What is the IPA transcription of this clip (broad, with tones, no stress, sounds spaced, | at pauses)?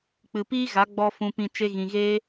k͡p ɨ˨ p iː˦ ɣ a˨˦ ɡ͡b ɔ˧ f ũ˧ p ĩ˧ t͡ʃ e˦ ɣ ĩ˧ ɣ eː˦